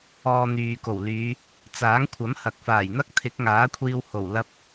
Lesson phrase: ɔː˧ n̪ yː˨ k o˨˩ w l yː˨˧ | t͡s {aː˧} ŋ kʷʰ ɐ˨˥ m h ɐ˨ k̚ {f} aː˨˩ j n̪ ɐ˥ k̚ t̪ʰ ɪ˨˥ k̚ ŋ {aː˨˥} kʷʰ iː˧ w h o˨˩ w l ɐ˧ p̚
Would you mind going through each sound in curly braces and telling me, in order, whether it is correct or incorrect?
incorrect: aː˨˥, correct, correct

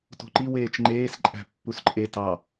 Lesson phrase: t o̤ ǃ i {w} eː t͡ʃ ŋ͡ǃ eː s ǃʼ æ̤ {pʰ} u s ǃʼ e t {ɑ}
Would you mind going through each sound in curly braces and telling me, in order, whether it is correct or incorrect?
correct, incorrect: pː, correct

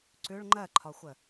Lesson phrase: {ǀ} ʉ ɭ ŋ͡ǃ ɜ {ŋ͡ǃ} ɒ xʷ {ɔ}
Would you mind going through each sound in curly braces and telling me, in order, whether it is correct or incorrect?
correct, incorrect: ǃʰ, incorrect: ə

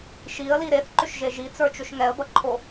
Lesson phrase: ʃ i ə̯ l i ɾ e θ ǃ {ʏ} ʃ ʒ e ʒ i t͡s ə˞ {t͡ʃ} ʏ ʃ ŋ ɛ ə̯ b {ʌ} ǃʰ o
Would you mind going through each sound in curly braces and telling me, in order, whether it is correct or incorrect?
correct, correct, correct

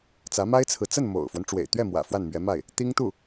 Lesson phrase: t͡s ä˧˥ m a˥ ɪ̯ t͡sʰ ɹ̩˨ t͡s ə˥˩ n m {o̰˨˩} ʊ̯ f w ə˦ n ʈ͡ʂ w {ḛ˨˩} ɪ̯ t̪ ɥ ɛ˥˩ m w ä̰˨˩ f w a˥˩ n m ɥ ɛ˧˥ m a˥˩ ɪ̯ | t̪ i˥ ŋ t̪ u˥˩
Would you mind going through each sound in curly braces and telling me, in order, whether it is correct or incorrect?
correct, correct

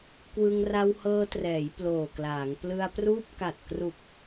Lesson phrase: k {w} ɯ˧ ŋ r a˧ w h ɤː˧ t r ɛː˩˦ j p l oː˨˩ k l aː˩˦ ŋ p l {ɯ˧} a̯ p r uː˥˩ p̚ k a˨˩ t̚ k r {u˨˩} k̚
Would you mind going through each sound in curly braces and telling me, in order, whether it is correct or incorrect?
correct, correct, correct

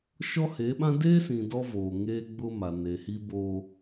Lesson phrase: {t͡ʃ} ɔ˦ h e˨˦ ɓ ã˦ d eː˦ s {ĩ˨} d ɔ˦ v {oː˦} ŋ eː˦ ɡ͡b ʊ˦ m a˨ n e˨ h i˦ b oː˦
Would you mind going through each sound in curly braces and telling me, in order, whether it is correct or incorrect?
incorrect: ʃ, correct, incorrect: oː˨

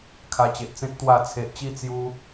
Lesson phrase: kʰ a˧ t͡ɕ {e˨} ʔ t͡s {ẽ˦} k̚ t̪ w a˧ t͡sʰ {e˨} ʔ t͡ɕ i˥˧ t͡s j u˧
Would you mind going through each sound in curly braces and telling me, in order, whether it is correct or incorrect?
correct, correct, correct

